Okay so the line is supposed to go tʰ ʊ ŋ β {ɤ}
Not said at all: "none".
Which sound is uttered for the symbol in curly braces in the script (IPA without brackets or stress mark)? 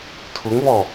ɔ